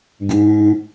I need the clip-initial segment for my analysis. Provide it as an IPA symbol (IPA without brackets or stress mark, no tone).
ɡ